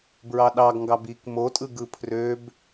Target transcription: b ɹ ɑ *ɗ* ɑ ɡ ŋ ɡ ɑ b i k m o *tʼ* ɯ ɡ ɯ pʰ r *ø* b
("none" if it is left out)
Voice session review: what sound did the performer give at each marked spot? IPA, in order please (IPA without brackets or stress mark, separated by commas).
ɗ, tʼ, ø